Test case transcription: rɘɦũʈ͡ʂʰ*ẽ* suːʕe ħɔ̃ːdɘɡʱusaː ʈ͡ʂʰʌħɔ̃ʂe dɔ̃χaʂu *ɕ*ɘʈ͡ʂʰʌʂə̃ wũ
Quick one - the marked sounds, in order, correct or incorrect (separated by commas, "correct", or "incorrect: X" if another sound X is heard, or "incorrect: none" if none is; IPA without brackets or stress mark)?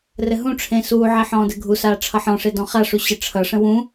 correct, correct